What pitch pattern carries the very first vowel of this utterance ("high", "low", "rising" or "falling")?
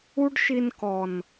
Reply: high